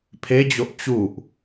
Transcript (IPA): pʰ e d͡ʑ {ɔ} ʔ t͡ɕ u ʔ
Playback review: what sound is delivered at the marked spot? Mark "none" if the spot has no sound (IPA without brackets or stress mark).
o